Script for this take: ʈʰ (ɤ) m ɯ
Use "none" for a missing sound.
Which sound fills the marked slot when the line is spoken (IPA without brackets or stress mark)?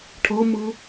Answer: ɤ